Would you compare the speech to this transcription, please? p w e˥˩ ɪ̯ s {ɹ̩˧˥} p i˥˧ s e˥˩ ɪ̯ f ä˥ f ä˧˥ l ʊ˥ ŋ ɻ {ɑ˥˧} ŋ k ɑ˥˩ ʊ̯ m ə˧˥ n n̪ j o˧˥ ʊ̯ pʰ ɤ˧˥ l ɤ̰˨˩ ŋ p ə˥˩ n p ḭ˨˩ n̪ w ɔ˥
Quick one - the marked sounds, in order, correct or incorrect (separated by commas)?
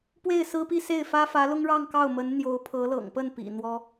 incorrect, correct